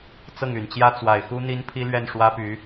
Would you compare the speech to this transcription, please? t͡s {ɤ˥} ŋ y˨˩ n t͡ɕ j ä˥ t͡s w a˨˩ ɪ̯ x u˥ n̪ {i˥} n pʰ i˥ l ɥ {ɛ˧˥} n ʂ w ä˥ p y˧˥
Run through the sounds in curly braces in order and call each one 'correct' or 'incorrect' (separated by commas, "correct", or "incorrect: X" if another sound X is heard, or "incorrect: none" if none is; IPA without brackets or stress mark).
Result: incorrect: ɤ˥˩, correct, incorrect: ɛ˥˩